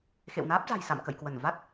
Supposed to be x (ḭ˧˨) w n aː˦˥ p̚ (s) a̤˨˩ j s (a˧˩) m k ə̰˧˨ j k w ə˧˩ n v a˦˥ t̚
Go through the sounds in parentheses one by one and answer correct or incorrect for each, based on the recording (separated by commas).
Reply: incorrect, incorrect, incorrect